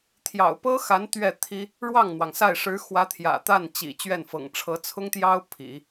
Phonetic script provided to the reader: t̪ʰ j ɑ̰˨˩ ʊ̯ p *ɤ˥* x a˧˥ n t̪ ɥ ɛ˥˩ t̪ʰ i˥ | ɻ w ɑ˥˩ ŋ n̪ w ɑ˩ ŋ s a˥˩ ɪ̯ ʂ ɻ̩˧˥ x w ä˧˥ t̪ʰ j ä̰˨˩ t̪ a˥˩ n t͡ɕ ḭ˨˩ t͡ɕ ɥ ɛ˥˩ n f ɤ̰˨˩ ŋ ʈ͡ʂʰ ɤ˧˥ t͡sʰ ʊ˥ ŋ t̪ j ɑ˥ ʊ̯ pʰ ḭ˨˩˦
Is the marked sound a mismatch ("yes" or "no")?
no